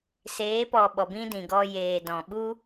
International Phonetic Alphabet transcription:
s eː˨˦ p ɔ˨ ɓ ɔ˨ b ĩ˦ d ĩ˨ ɡ ɔ˧ j eː˨ d ɔ̃˨ ɓ u˦

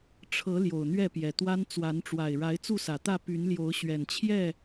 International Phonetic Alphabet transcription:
ʈ͡ʂʰ ɤ˨˦ l j o˨˩ ʊ̯ n̪ ɥ ɛ˥˨ p j ɛ˨˩ t̪ w a˦ n t͡s w a˨˦ n ʈ͡ʂ w a˨˩ ɪ̯ ɻ a˨˦ ɪ̯ t͡s u˥˨ s ä˨˩ t̪ ä˥˨ p y˨˦ n l j o˨˦ ʊ̯ ɕ ɥ ɛ˨˩ n t͡ɕʰ j ɛ˥˨

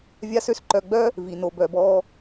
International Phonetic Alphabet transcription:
vʲ a˦ s ø˦ s ǃ œ˧ ɡ͡b œ˦ | v i˨ n o˨ b œ˨ b ɔː˧

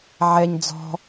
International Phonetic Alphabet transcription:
ʕ ɛ ɲ d͡z ɔ̤

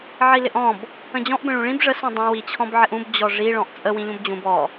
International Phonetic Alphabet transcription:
ʕ i l ɪ ʔ ɔ̃ b | ə̃ d͡ʑ ɔ̃ ʔ b ə̃ ɭ ũ ɭ ĩ b ʐ ə s ũ dˤ ə̃ w i t͡ɕʰ ɔ̃ b ʕ ɪ ʔ ũ b d͡ʑ ɔ ʐ i ɭ ɔ̃ ʔ t͡sʼ ə w ĩ ʎ ũ b d͡ʑ ũ b ɔ

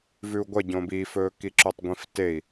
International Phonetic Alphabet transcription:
v ʉ u̯ ɡʷ ɐ ɟ õ b i f ɵː k i ǁ ɵ tˤ ɡʷ ĩ f t e i̯

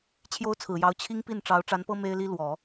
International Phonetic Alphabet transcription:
t͡ɕʰ j o˥ ʊ̯ t͡sʰ ɹ̩˨˩ j ɑ˧˥ ʊ̯ t͡ɕʰ i˥ ŋ p i˥˩ n ʈ͡ʂ ɑ˧˥ ʊ̯ ʈ͡ʂ a˧˥ n p ɤ˥ m e˥ ɪ̯ l i˥ l w ɔ˨˩˦

